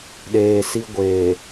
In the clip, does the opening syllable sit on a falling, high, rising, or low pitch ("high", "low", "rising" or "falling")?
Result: low